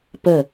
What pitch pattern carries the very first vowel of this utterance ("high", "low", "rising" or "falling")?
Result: falling